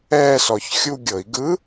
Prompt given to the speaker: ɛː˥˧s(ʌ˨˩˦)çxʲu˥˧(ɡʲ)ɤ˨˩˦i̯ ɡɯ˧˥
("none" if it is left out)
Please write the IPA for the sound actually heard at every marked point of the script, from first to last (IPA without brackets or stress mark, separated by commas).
ɔ˨˩˦, ɡʲ